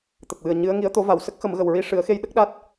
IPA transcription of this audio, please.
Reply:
t̪ ə˨˩ k̚ w ɨ˨˩ ə̯ ɲ ɨ˧˥ ə̯ ŋ i˧˥ ə̯ t̪ o˧˥ v a˨˩˨ w s ə˦˥ k̚ x ə˨˩˦ m ɣ ə˨˩ w ɹ i˧ ʂ ɨ˨˩˦ ə̯ x e˧ j ɗ ə˦˥ k̚ ɗ a˦˥ t̚

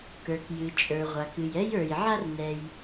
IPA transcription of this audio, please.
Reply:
k ə˞˩ k j ɨ˩ t͡ʃʼ ə˞˩ ʁʷ a˩ k ɨ˩ j ɛ˦ j ə˞˩ j ʕ a˦ r n ɛ˩ j

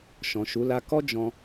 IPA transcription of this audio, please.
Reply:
ʃ ɔ̃˨ ʃ u˨˦ l a˧ k ɔ˦ d͡ʒ ɔ̃˧

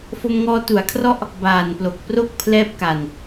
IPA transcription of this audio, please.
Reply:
f o˧ m ŋ ɔː˧ t u˩˦ a̯ kʰ r ɔ˦˥ ʔ | b aː˨˩ n p l o˨˩ k̚ p r o˥˩ k̚ pʰ l ɛː˦˥ p̚ k a˨˩ n

